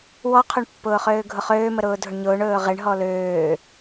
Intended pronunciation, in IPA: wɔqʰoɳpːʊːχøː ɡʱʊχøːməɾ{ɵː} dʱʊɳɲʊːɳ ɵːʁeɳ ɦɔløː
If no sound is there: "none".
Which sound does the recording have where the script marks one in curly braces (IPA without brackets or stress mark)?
ʊː